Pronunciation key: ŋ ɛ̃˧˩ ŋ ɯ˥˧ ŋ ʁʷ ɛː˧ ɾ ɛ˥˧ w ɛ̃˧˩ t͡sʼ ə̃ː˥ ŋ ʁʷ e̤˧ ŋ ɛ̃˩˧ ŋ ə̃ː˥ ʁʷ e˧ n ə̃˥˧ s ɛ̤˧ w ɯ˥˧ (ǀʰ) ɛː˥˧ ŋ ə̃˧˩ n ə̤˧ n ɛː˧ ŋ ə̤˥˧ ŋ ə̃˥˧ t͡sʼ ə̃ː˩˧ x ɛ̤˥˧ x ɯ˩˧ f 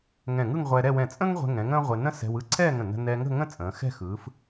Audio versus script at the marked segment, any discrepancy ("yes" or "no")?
no